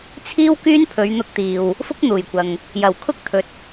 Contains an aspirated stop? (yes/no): yes